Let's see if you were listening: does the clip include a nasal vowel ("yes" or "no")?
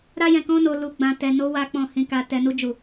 yes